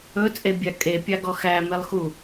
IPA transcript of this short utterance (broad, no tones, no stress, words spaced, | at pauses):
ɵt͡sʼebʲa kʼepʲɑɡɔ xæmelˠxu